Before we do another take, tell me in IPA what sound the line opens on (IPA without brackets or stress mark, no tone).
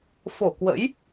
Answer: f